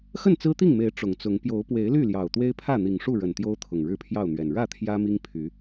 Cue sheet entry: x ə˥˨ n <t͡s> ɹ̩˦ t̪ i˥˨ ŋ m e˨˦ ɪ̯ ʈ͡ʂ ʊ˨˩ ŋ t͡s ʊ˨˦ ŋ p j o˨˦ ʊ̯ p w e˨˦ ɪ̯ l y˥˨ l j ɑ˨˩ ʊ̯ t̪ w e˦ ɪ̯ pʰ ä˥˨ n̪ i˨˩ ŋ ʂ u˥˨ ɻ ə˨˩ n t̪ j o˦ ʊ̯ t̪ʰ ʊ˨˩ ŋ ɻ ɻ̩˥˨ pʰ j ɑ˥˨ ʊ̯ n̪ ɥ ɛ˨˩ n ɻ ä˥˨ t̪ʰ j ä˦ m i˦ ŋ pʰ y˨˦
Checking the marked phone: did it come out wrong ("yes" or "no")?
no